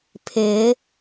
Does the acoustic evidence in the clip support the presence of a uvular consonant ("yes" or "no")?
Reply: no